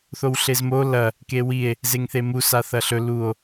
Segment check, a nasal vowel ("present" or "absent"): absent